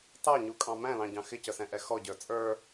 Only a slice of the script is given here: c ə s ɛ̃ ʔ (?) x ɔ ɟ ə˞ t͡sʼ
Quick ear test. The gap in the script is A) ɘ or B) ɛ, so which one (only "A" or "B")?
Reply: B